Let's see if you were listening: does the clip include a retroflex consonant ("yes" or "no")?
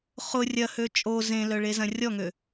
yes